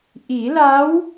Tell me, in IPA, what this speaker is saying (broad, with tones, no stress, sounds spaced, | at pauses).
ʔ i˨˩˦ l a˧˥ w